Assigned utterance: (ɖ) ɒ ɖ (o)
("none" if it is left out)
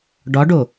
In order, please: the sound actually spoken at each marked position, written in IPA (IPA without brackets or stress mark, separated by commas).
ɖ, o